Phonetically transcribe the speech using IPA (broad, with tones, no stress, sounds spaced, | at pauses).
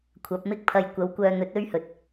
kʷʰ ɐ˨˥ p̚ m ɪ˥ k̚ pʰ ɐ˧ j kʷ ɐ˨˧ w kʷ œː˧ n̪ ɵ˨˥ t̚ ɵ˥ ɥ h ɵ˨ t̚